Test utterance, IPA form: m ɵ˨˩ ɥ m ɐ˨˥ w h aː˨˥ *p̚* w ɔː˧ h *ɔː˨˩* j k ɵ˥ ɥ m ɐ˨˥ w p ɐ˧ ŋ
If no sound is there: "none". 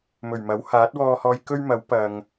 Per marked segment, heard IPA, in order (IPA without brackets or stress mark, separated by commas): t̚, ɔː˧